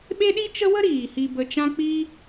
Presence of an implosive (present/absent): present